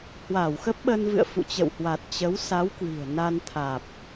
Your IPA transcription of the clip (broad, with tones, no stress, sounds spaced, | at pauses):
h w a˧˩ w x ə˦˥ p̚ ɓ ə˧ n v ɨ̰˧˨ ə̯ f ṵ˧˨ t͡ɕ ə̰˧˨ w h w a˨˩ t̚ t͡ɕ ə˨˦ w s a˨˦ w k w i̤˨˩ ə̯ n a˧ n t̪ʰ aː˨˩ p̚